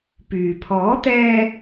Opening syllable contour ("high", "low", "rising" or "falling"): low